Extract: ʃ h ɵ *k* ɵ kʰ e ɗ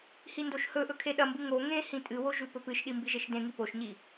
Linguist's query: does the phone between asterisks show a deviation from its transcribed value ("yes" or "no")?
yes